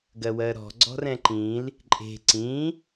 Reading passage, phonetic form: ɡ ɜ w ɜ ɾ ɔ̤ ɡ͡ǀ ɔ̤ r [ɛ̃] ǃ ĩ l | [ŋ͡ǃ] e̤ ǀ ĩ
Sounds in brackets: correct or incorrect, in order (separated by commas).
correct, incorrect